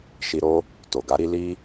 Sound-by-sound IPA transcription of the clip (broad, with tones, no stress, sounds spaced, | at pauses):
ʃ i˧ ɾ o˦ | t o˨ ɡ a˨˦ ɾ i˧ l i˦